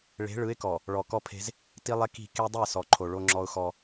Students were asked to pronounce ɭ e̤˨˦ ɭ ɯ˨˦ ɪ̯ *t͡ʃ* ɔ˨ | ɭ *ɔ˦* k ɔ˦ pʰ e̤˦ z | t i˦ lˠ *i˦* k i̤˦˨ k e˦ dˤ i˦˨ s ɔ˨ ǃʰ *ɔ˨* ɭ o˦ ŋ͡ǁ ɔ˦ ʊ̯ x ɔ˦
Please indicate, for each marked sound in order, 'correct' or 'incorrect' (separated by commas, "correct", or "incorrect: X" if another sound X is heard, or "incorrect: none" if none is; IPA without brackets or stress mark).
incorrect: k, incorrect: ɔ˨, incorrect: e˦, incorrect: o˨